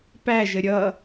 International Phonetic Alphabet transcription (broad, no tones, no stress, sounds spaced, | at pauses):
p æ ʒ ə ɾʲ ʌ